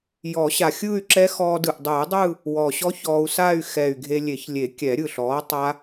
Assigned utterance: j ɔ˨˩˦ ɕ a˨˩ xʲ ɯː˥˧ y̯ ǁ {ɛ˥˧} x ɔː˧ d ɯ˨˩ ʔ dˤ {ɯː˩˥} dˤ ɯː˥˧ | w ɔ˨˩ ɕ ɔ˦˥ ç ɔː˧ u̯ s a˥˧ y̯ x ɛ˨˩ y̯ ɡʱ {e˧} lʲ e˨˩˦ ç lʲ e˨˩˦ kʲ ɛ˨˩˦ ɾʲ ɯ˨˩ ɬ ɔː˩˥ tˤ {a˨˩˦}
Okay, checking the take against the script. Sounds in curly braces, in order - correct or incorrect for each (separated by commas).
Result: incorrect, incorrect, correct, incorrect